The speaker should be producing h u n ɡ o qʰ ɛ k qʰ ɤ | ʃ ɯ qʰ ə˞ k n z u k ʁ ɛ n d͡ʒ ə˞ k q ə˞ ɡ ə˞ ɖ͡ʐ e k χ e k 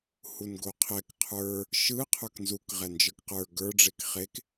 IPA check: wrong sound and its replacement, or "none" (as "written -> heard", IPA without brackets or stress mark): ɤ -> ə˞